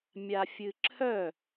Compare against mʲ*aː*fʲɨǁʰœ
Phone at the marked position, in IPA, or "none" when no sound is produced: a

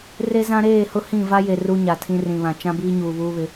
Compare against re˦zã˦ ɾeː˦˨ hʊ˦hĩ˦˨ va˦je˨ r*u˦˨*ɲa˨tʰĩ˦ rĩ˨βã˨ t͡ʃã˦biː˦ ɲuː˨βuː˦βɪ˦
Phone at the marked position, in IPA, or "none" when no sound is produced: u˦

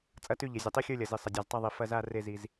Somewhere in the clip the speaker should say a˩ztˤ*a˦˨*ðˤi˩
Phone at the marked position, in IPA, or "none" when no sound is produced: a˦˨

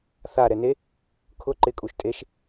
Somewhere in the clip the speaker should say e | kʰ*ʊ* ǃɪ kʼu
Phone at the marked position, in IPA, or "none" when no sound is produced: ʊ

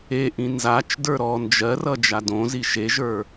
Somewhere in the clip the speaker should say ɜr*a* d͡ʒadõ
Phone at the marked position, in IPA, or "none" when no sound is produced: ʌ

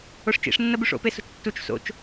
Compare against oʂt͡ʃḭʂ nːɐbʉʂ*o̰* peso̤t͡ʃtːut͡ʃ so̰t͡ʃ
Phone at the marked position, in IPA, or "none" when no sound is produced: o̰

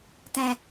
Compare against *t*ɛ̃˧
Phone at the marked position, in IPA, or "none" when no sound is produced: t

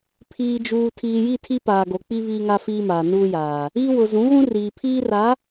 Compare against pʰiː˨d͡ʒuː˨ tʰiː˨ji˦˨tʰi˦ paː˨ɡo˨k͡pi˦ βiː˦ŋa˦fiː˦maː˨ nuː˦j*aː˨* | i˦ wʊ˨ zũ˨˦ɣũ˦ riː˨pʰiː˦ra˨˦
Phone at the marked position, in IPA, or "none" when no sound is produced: aː˨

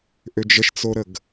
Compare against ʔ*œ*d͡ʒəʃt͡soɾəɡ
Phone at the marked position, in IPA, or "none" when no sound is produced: ø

